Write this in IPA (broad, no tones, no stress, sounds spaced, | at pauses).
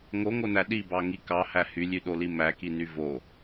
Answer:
ŋ o ŋ o n æ ɗ i b ɑ ŋ i k ɑ h æ h y lʲ y ɗ o l i m æ k i n y v o